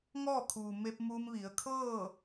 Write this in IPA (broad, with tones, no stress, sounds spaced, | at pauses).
ŋ ɔː˥˨ kʰ uː˩ m e˧ p̚ m uː˧ m ʋ i˩˧ ə̯ kʰ ɤː˥˨